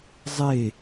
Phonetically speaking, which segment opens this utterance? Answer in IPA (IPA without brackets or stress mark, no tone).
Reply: zˤ